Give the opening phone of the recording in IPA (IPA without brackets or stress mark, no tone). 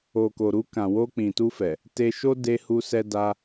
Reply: o